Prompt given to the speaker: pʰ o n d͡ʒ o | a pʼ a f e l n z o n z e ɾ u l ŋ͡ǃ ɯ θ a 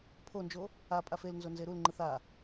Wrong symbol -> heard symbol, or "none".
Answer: none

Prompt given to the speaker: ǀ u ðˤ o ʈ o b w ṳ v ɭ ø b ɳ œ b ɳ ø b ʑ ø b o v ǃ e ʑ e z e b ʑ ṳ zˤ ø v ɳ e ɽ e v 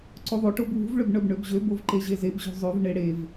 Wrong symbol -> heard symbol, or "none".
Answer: none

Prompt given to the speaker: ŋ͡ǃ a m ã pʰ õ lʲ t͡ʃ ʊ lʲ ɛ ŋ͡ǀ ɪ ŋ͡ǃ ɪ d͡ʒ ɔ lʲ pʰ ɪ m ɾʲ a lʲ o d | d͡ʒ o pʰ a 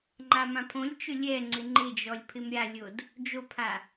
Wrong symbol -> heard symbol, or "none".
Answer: none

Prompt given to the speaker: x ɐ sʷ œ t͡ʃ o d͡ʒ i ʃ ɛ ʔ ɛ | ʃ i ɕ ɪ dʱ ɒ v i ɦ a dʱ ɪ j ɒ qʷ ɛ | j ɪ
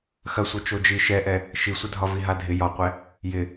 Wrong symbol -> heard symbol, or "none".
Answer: ɕ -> sʷ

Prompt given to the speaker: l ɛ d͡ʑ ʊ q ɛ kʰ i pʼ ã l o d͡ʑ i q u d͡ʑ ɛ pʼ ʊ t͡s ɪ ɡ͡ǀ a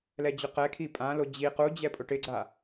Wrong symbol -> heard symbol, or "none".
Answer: t͡s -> ʈ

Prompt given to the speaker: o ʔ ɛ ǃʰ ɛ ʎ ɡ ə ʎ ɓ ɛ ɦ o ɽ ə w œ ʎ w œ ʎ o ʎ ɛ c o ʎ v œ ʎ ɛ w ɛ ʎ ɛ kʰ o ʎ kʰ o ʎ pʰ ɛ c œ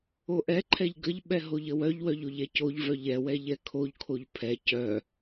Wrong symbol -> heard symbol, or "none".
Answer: ɽ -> ʎ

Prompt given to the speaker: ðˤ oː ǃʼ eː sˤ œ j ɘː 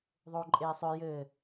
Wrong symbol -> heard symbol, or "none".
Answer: none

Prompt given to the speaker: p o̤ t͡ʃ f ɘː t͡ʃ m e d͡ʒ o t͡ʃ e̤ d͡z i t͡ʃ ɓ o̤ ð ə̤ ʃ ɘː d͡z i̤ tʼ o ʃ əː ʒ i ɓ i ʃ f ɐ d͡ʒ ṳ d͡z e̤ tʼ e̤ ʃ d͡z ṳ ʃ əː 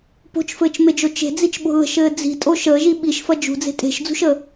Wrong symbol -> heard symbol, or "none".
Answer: none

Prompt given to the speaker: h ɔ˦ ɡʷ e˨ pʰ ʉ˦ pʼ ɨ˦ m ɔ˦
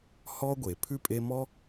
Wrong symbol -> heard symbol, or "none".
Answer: ɨ˦ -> e˦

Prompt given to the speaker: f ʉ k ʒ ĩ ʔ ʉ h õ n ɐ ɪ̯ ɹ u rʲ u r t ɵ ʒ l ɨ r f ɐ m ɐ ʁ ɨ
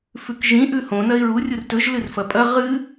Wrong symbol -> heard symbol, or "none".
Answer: m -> pʼ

